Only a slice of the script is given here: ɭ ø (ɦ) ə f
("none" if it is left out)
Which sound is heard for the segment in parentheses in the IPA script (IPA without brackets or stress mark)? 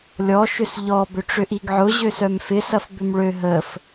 ɦ